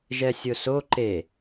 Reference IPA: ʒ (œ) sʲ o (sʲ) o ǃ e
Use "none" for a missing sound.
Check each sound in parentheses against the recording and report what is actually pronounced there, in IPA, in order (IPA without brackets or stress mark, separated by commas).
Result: ɛ, s